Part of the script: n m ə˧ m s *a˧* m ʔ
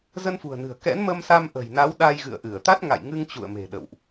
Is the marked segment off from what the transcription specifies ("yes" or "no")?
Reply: no